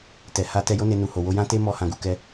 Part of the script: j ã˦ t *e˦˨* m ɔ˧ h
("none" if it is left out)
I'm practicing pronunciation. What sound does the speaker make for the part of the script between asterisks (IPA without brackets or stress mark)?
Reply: e˦